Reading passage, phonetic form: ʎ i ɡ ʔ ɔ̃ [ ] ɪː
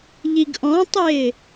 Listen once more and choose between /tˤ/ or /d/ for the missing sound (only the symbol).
tˤ